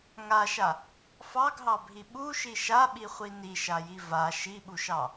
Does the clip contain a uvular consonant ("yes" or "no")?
yes